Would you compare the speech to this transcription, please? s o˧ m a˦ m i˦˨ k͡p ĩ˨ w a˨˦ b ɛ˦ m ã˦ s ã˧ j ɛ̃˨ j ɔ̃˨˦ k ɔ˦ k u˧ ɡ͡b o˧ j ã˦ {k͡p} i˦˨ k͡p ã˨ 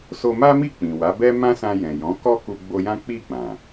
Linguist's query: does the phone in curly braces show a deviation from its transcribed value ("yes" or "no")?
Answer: no